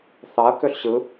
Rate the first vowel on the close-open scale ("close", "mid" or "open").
open